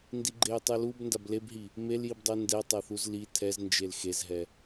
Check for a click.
present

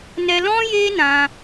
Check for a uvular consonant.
absent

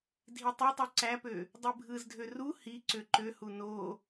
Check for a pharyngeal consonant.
absent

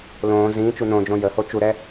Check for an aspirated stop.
absent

